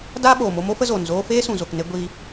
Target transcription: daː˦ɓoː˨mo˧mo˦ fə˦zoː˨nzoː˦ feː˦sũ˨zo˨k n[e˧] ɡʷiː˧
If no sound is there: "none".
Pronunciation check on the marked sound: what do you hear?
e˧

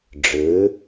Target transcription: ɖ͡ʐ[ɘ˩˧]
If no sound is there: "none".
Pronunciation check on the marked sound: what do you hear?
ɘ˩˧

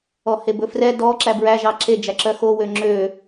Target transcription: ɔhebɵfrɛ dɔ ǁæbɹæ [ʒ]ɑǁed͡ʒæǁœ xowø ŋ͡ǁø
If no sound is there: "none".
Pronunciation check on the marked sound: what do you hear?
ʒ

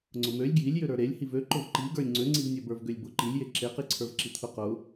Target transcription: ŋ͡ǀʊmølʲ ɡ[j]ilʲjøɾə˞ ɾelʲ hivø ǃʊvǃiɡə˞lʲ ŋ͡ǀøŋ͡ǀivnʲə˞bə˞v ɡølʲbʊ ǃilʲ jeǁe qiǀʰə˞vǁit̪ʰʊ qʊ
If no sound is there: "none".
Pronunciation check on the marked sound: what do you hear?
j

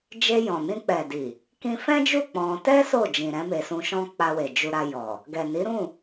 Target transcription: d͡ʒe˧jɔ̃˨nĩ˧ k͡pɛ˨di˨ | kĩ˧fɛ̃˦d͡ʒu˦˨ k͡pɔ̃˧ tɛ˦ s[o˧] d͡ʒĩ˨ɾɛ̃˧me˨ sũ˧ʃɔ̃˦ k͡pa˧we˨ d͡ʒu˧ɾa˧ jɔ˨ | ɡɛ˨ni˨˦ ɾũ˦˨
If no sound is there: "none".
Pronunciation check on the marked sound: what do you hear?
o˦˨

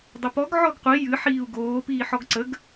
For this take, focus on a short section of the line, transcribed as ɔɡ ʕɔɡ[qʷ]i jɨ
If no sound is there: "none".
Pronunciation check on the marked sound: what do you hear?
qʷ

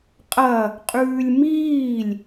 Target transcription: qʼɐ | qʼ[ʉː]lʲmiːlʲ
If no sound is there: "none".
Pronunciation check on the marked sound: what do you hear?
ʉː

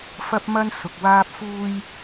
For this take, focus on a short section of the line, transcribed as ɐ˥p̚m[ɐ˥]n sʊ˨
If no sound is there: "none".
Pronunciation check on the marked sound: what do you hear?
ɐ˥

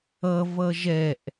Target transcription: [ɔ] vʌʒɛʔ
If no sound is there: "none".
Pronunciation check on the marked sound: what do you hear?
ʌ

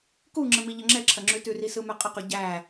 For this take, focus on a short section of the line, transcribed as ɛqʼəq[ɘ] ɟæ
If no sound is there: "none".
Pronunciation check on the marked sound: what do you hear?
ʉ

